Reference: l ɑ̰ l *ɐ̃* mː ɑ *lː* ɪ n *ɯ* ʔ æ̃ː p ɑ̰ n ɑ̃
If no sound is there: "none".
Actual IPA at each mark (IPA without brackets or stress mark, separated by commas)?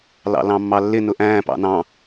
ɑ̃, lː, ʊ